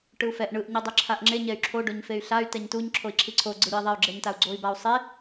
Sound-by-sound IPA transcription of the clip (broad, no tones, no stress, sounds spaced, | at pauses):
ʈ ɯ u̯ f ɛ ʔ ɳ ɯ ʔ ɲ i dˤ ɯ ǁʰ a ʔ ŋ͡ǁ e ɲ ɛ y̯ ǁʰ o ɖ o ɲ f e y̯ ɬ a y̯ t ɛ ɲ t u ɲ ǁʰ o i̯ ǁʰ i ǀʰ o ɡ͡ǀ ɯ ɾʲ o i̯ ðˤ e y̯ ɡ͡ǁ ɛ ɲ t a u̯ ɡ͡ǀ o i̯ b a u̯ sˤ e